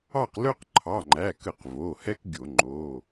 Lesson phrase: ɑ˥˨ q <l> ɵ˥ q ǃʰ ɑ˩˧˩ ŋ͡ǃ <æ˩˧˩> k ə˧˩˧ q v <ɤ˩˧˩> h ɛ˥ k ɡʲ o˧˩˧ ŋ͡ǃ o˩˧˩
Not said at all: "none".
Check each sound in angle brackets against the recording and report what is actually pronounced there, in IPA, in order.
l, æ˩˧˩, o˩˧˩

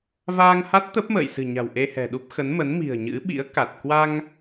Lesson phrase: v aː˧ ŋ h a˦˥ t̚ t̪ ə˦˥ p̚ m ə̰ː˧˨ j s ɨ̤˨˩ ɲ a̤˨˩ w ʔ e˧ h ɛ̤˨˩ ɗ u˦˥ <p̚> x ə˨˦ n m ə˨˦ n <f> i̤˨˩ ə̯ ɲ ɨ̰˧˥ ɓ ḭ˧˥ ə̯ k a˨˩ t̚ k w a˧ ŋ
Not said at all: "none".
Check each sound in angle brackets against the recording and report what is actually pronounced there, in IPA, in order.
p̚, m

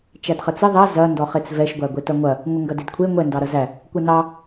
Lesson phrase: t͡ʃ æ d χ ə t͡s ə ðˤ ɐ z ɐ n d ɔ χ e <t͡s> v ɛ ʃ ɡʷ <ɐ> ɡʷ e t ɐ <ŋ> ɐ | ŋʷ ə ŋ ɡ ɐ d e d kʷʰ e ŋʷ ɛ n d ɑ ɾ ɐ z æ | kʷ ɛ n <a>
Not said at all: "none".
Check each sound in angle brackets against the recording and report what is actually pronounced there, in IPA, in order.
t͡s, æ, ŋʷ, ɑ

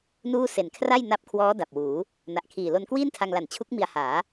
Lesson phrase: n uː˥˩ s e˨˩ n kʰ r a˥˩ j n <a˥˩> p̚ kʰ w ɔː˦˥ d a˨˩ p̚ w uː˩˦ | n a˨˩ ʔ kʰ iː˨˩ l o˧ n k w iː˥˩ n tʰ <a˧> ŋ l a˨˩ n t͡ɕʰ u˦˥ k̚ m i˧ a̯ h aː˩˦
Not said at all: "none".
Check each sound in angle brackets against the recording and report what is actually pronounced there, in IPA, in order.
a˦˥, a˧

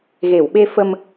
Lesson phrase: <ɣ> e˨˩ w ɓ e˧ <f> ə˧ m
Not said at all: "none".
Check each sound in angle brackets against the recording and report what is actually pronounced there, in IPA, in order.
ɣ, f

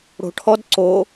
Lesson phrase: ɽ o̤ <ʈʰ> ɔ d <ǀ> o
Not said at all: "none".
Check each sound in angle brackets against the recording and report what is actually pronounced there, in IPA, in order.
ʈʰ, ǀ

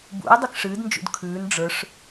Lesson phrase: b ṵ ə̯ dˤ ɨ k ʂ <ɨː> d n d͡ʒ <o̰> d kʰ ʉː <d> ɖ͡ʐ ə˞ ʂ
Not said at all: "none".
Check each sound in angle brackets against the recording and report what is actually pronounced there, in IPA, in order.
ɨː, ṵ, n

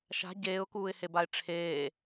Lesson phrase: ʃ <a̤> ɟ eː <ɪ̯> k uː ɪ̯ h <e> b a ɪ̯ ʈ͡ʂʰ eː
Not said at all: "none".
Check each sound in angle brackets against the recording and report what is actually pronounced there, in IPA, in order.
a̤, ʊ̯, e

